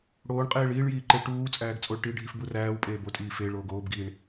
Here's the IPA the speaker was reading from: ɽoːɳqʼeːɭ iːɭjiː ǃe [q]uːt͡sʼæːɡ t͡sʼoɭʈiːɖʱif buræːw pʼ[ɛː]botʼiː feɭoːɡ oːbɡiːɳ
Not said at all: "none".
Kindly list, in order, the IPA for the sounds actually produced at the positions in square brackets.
ʈ, eː

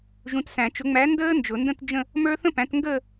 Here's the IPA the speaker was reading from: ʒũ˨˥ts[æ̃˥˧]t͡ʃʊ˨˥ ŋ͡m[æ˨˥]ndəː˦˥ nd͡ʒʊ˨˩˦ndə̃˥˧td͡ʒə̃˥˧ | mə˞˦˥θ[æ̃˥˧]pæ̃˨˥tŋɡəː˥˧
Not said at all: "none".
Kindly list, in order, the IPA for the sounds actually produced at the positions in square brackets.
æ̃˨˩˦, æ˨˥, ə̃˥˧

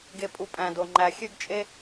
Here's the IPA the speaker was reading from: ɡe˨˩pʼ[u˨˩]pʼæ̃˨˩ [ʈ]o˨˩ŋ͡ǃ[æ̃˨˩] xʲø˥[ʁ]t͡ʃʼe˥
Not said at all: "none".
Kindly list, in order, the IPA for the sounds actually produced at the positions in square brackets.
u˨˩, d, æ˨˩, ɡ

